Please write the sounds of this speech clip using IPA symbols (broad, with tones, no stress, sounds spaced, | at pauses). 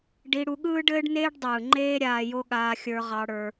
ɖ i˧ ɽ u˧ ɠ ɯː˦ ɖ ɘː˦ ɖ n eː˦ ɖ dˤ ɯː˨ ŋ͡ǃ eː˦ ɾʲ aː˧ j o˦ ɠ aː˧ xʲ ə˞˧ ʁ ɑ˧ ɽ ə˞˧